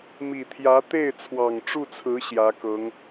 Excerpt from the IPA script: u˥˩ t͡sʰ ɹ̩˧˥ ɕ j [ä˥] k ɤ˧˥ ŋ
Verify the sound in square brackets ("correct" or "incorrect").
incorrect